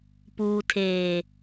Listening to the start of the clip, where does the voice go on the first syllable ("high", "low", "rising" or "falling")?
low